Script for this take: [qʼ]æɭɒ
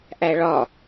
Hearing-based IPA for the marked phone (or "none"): ʔ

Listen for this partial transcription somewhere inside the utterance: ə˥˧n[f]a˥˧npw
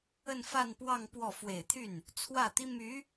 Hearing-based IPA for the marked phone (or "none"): f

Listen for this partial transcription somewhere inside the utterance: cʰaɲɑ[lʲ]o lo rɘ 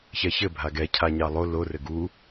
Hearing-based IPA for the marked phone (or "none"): lˠ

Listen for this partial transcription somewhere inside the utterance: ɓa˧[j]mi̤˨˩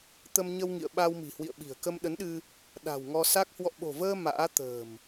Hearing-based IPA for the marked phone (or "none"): w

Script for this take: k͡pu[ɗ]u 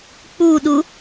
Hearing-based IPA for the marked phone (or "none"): ɗ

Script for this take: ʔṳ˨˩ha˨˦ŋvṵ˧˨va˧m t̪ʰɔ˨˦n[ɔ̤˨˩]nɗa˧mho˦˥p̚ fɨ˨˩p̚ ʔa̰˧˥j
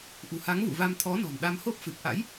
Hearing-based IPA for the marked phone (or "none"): ɔ̤˨˩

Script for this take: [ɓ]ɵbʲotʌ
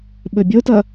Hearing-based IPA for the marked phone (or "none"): ɓ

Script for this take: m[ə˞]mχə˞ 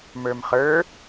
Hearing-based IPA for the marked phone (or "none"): ə˞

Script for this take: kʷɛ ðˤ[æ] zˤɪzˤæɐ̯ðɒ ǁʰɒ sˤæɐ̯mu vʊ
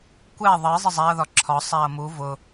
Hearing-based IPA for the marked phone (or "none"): ɜ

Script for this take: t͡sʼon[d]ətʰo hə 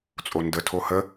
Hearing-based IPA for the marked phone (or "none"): d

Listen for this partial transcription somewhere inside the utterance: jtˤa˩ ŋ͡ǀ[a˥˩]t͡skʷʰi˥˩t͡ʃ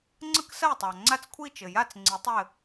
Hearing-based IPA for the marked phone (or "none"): a˥˩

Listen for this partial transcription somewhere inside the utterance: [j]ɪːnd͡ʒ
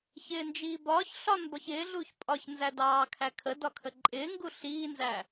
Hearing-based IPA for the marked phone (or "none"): ç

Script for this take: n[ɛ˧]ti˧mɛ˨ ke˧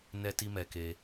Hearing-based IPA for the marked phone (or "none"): ɛ˧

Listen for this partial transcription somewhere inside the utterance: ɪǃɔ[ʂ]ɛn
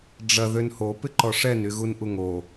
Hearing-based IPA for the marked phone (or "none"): ʂ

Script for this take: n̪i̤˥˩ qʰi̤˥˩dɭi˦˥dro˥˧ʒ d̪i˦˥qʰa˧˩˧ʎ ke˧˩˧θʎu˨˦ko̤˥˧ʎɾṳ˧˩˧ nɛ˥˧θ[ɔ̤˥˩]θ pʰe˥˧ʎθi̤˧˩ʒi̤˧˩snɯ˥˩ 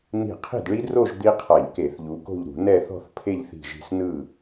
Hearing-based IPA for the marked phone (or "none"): ɔ̤˥˧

